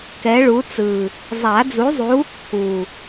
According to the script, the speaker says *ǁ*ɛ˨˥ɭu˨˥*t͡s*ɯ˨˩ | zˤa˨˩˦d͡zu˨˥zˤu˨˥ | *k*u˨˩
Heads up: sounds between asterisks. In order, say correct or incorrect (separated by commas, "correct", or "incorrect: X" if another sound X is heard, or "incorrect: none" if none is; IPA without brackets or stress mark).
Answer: incorrect: k, correct, correct